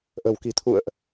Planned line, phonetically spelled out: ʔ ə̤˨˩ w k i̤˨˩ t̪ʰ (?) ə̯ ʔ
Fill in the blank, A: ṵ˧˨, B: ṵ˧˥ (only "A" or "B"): A